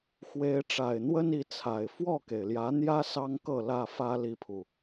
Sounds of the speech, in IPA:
x w e˨˦ ɪ̯ ʈ͡ʂ a˨˩ ɪ̯ n̪ w ə˦ n i˨˦ t͡sʰ a˨˩ ɪ̯ f w ɔ˥˨ k e˩ ɪ̯ l j ä˨˦ n̪ j ä˦ s ɑ˦ ŋ k ɤ˥˨ l ä˥˨ f ä˦ l i˦ pʰ u˨

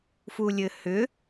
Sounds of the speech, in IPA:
f u lʲ ɘ h ʏ

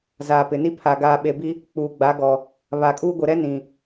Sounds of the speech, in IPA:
z aː˨ p ɪ˨ n i˦ pʰ a˨ ɡ aː˨ ɓ e˨ b i˦ | k͡p uː˨ ɡ͡b a˨˦ ɡ ɔ˨ | β a˨ kʼ uː˦ ɡʷ ɪ˨ ɾ ɛ˦ n ĩ˨

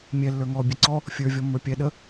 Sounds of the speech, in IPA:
mʲ ɛ lː ə˞ ŋ ɔ bʲ ɛ ǀ ɔ | fʲ ə˞ vʲ ɔ mː ə˞ pʲ ɛ ɗ ə

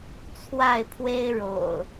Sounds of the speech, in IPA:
t͡sʰ w a˥˨ ɪ̯ pʰ w e˦ ɪ̯ ɻ o̰˨˩ ʊ̯

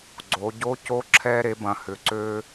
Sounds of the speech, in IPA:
ɡ͡ǀ o˩˧ ɟ o˧˥ c o˧˥ ǁʰ ɛ˧ ɾ e˩˧ b ɐ̃˩ h ʏ˩ ǀ ø˧

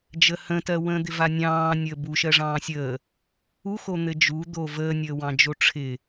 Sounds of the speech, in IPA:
d͡ʒ əː h ə̃ t ɜ w ə̃ː d̪ ɪ v a nʲ ɑ̃ː nʲ əː b u ʃ ɜ ʐ ɑ̃ː sʲ əː | u x o n̪ ɘ d͡ʒ u d̪ o v əː nʲ əː w ɑ̃ d͡ʒ o ʈ͡ʂʰ ɪ

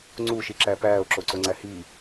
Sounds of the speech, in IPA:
ŋ͡ǀ u ʃ i ǁ æ p æː o̯ ǁ o ǀ o ŋ͡ǀ æ h i

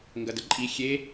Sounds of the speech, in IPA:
ŋ ɡ ɐ d ə ǃʼ i xʲ e

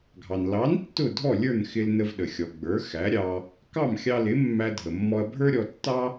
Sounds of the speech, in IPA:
ɡʱ ɑ˩ n l ɑ˩˥ n tː ʊ˥˩ dʱ ɔ˥˩ lʲ ə˞˥˩ n x ɪ˧ l n ə˧ v ɗ ə˩ xʲ ɔ˩ ɡ͡b ə˞˩˥ x æ˩˥ ɾʲ ɑ˧ | k ɑ˥˩ m xʲ ɑ˧ l ɪ˩˥ mː æ˧ dʱ ə˩ mː ɔ˧ ɐ̯ bʱ ə˞˥ ɾʲ ɔ˧ tː ɑ˥

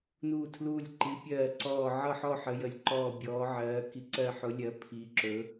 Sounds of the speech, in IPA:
n uː˦˨ tʰ l uː˦˨ lʲ ǃ i˨˥ pʲ ɜː˦˨ ǀ ɔː˦˨ ʕ ʌ˦˨ ħ ɔ˦˨ ħ ə˨˥ j ə˨˥ lʲ ǃ ɔː˦˨ bʲ ɔː˨˥ ʕ ɜː˨˥ k i˨˥ ǀ ɜ˦˨ ħ ʊ˨˥ lʲ ɜ˨˥ pʰ i˨˥ ǁ ɵ˨˥

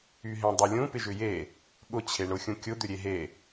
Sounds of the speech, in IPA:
y ɦ ẽ dˤ u lʲ ũ p ɪ ʒ ʏ j e | ɠ ʊ t͡ɕʰ e ɳ ʊ xʲ ũ kʲ ʊ d̪ ʏ ɾʲ e ɦ e

